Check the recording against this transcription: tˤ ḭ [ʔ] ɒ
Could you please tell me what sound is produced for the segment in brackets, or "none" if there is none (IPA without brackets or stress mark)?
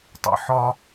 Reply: ħ